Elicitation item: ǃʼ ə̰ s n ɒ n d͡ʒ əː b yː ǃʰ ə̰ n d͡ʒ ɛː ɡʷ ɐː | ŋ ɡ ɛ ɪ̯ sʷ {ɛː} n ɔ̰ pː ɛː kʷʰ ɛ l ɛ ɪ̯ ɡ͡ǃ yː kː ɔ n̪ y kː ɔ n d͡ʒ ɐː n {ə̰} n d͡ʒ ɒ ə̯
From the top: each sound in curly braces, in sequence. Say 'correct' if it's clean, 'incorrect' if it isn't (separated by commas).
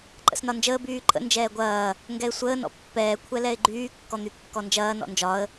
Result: incorrect, incorrect